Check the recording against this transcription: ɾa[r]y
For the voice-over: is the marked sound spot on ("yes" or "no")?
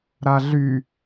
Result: no